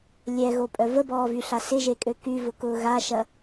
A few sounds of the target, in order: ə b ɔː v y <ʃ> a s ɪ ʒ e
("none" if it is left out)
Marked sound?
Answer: ɬ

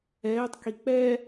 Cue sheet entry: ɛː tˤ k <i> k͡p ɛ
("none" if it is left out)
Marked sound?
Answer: i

